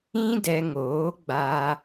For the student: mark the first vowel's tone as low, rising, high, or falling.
high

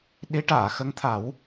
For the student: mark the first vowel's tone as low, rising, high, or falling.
rising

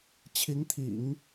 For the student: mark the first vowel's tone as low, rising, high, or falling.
rising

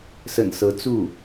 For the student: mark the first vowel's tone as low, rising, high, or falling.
low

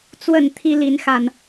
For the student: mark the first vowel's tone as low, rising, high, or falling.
falling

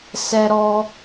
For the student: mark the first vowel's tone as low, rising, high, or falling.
high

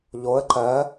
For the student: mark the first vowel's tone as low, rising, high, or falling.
rising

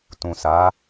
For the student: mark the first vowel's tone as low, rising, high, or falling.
low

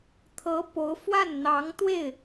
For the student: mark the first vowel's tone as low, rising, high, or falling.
rising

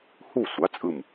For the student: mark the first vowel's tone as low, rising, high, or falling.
falling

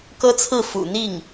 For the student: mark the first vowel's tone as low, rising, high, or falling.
high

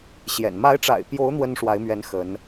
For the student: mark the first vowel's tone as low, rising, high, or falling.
low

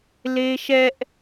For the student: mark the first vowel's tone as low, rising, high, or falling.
high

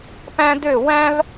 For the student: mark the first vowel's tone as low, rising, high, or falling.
high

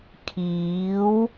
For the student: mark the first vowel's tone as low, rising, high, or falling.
rising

